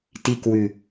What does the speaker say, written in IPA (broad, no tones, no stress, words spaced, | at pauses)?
tikwʉ